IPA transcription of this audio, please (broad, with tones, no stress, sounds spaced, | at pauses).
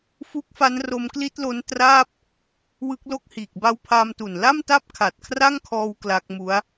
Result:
f u˦˥ k̚ f a˦˥ n r o˧ m k l i˦˥ t̚ l o˦˥ n t r aː˥˩ p̚ | w ɯ˦˥ k̚ l o˥˩ k̚ h iː˨˩ k̚ b a˦˥ w pʰ aː˧ m t u˨˩ n l a˥˩ m t a˥˩ p̚ kʰ a˨˩ t̚ kʰ r a˥˩ ŋ kʰ ɔː˧ w k l a˦˥ k̚ m u˦˥ a̯